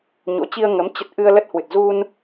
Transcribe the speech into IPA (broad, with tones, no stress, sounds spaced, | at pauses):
ɲ o̰˧˥ t͡ɕ i˧ ə̯ ŋ ə˨˦ m t͡ɕ ə˦˥ t̚ ʔ ɨ˧ ə̯ l ə˦˥ t̚ h w ɨ˨˩ t̚ z u˧ n